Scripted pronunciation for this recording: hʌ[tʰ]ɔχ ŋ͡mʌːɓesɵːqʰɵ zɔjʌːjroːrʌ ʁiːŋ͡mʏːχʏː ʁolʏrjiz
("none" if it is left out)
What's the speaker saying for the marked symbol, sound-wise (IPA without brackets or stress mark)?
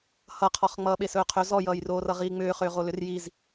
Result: qʰ